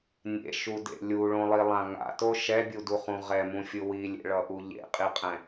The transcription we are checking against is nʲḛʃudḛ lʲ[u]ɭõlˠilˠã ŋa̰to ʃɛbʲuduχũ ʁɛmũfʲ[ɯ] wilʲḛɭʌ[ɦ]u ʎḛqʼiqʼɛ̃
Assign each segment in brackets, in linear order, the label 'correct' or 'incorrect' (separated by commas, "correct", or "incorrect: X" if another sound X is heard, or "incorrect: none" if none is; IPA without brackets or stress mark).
correct, correct, incorrect: ʔ